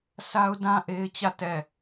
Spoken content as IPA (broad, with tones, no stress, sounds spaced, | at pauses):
s a˦ ʊ̯ d ã˦ ʔ e˦ ɪ̯ t͡ɕ ä˦˨ t ɛ˦˨